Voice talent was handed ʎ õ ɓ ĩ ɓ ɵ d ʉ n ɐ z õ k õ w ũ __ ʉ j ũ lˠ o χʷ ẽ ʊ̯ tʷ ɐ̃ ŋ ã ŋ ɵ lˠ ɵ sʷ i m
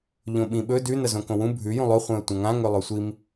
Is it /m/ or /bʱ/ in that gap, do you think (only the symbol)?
bʱ